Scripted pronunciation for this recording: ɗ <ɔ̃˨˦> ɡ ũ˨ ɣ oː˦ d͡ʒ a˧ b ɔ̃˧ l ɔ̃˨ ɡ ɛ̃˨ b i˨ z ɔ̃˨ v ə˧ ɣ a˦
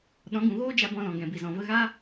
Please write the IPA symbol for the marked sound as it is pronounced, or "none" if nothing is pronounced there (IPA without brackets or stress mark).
ɔ̃˨˦